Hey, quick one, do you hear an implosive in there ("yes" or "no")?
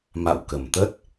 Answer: no